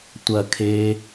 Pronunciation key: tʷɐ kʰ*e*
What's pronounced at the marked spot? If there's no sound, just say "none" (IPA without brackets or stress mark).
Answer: e